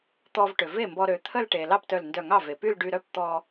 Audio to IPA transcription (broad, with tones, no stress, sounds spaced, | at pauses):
t̪ ɔ˧ v ʈ ø˩ v e˥˩ m b ɔ˧ ɾ ø˩˧ t̪ʰ ə˥˧ l ʈ e˩ l ɑ˥˩ p t œ˧˩ l n d œ˧˩ ŋ ɑ˥˩ v e˩ p y˥˧ l ɖ y˧ ɾ œ˥˧ p t̪ ɔ˧